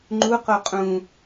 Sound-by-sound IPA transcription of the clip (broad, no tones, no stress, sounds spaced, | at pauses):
ŋ͡ǃ u q o qʼ ũ